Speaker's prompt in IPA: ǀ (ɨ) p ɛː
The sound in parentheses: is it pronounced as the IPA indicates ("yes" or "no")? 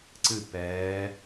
yes